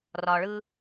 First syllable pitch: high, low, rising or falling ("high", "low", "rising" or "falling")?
low